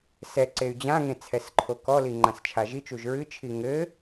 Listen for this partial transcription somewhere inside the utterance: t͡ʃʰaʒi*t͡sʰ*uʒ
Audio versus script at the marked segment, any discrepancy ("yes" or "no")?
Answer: yes